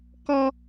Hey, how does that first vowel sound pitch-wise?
high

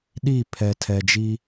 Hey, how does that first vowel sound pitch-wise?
falling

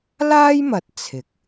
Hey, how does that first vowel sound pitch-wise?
high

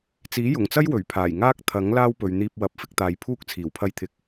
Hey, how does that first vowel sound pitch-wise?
rising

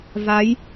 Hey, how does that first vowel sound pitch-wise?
rising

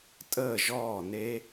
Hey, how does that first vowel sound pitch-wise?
falling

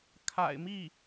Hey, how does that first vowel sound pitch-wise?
low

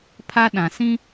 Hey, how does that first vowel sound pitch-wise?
high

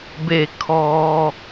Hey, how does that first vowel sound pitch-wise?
falling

